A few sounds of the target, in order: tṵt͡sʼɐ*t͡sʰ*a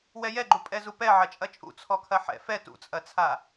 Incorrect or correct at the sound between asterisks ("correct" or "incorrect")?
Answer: correct